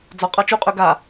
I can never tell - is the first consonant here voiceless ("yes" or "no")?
no